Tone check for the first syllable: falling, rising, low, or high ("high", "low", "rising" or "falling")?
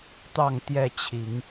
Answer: falling